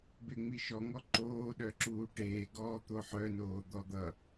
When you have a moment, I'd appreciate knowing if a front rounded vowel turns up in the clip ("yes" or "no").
yes